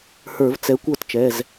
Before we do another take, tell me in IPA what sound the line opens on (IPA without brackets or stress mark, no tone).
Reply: h